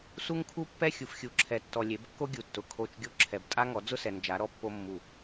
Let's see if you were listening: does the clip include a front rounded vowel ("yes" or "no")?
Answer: no